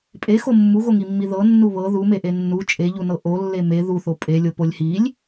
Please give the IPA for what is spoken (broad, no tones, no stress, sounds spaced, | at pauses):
pʼ e x o mː u ɣ o ŋ i mː i ð ɤ nː u β ɤ ð u m e ʔ e nː u t͡ʃʼ e ʎ u n ɤ ʔ o lː e m e ð u θ o pʼ e lʲ o p o lʲ h i lʲ